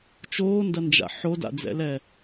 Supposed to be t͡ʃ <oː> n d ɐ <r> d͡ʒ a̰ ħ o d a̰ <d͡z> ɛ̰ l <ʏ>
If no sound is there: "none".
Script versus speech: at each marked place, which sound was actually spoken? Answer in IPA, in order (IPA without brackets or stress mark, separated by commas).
oː, n, d͡z, ɛ